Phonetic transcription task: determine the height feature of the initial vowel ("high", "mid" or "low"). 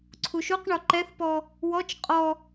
high